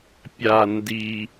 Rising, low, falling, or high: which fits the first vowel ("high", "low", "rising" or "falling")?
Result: low